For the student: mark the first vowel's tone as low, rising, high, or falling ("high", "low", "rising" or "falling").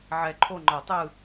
low